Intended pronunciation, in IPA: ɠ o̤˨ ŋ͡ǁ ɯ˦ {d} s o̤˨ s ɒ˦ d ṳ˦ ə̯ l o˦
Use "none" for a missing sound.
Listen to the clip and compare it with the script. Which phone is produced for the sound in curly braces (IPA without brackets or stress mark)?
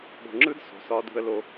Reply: d